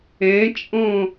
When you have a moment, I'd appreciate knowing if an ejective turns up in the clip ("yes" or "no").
yes